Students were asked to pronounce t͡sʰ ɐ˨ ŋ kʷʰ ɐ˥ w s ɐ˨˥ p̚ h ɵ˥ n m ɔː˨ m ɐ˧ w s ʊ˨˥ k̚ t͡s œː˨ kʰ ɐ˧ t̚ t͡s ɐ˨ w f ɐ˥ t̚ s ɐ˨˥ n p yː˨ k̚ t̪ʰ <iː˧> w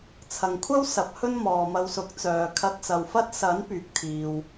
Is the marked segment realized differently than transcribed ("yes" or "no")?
yes